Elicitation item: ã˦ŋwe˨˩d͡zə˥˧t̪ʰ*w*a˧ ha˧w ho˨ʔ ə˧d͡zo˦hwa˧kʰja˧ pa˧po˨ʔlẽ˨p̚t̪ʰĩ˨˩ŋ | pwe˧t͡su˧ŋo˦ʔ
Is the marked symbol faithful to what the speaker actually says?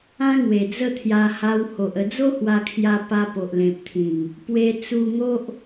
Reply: no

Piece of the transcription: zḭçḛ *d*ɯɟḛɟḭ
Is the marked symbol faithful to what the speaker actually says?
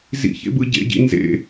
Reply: no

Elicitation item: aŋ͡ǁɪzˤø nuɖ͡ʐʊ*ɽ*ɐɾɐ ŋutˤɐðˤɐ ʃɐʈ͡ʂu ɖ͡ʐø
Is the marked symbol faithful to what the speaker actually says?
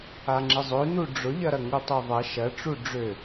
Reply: no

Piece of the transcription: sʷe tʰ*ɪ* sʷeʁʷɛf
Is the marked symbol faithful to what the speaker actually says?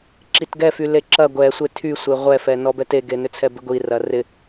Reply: no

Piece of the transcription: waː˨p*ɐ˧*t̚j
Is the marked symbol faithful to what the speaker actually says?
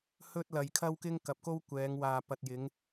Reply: no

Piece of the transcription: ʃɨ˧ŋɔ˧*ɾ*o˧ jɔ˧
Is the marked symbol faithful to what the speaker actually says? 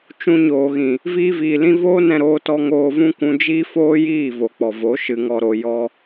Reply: yes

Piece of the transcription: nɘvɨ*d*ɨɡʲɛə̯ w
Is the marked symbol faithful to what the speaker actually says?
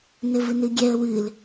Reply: no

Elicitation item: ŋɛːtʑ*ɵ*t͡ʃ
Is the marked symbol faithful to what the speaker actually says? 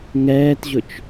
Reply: yes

